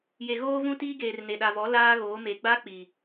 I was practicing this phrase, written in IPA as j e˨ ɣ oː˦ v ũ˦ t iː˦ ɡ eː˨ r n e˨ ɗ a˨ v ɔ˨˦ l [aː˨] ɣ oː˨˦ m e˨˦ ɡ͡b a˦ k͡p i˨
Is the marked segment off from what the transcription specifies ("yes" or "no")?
yes